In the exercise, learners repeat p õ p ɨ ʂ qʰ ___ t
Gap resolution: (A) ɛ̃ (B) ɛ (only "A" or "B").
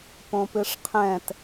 A